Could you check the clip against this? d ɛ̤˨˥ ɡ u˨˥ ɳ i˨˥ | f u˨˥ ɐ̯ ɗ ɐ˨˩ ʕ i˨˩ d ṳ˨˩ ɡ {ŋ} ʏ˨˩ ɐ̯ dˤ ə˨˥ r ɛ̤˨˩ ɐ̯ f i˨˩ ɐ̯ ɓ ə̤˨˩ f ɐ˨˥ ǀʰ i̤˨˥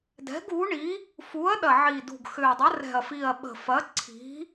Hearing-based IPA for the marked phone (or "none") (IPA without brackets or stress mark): x